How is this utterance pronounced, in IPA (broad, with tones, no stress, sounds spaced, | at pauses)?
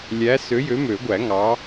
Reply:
lʲ æ˨˥ s ø˨˥ j ø˨˥ m ø˨˩˦ ɡʷ æ˨˩˦ ŋ ɑ˨˥